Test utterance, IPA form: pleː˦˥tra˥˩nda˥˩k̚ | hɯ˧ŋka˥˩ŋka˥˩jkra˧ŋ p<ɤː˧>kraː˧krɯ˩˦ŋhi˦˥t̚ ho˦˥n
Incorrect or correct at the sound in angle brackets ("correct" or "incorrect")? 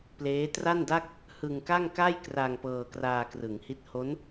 correct